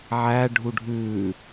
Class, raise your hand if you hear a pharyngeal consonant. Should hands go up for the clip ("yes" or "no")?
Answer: yes